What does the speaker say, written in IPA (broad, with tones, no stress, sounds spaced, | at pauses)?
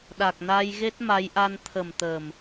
ɗ a˨˩ k̚ n a˧ j ɣ e˦˥ t̚ m a˨˦ j ʔ a˧ n t̪ʰ ə˨˩ m t̪ ə˨˩ m